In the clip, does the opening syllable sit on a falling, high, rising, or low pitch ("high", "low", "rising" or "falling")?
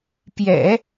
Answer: low